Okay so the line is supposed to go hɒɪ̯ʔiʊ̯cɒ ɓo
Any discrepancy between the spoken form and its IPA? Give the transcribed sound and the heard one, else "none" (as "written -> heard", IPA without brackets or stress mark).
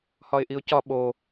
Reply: none